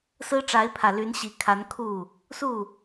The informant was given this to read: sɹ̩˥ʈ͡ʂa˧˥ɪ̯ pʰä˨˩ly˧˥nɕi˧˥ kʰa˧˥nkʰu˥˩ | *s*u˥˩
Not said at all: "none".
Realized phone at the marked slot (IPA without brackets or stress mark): s